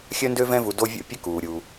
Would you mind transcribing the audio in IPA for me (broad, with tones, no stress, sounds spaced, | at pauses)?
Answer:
xʲ œ˦ n d ø˦ v ɛ̃˦ v u˨ d o˦ vʲ o̰˥ pʲ ə˥ k uː˩ ɾʲ u˩